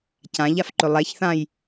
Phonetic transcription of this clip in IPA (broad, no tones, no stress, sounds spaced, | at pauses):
c ã ʎ a f ǃ ɵ lˠ ɛ ç θ ã j